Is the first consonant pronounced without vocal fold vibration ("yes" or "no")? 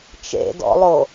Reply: yes